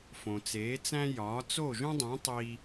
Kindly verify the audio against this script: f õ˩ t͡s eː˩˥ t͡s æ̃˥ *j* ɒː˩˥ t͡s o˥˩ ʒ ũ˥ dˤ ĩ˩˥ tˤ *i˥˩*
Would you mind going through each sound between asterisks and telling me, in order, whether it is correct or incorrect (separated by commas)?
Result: correct, incorrect